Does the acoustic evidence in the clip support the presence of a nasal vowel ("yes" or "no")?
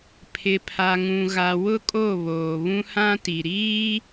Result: yes